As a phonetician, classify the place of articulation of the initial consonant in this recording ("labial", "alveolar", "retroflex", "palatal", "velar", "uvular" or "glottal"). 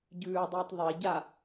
palatal